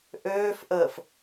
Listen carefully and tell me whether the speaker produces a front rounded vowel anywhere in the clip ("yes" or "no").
yes